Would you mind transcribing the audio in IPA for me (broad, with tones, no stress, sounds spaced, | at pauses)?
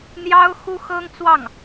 n̪ j ɑ˥ ʊ̯ x u˥ x ɤ˥ ŋ t͡s w ɑ˥˩ ŋ